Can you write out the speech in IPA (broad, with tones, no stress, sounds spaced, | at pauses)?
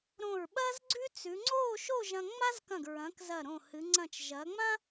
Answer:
ɾ õ˧˩ ɹ ɓ ɐː˥ z ɡ͡ǀ ʉ˥ t͡s ʉ˩˧ ŋ͡ǀ oː˥˧ ʃ o˥˧ ʒ ɐ̃˧ ŋ͡m a˥ z k ɐ̃˧˩ ɡ ɹ ɐ̃˩˧ k z ɐ˧˩ ɾ õ˧˩ h ɨ˩˧ ŋ͡ǀ ɐ̃˧˩ t͡ʃ ʒ ɐː˩˧ ŋ͡m ã˥